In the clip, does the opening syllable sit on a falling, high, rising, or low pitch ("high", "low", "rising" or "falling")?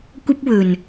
high